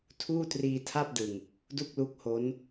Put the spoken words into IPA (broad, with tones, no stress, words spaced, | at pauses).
tʰuː˥˩triː˧tʰa˥˩p̚dɯ˨˩ŋ | du˥˩k̚lu˦˥k̚ho˦˥n